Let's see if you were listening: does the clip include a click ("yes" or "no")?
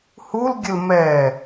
no